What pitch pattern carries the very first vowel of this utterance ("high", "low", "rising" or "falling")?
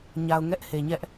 low